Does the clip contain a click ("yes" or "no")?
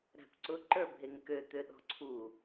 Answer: yes